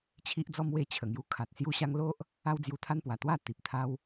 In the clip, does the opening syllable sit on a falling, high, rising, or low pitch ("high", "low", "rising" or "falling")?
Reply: high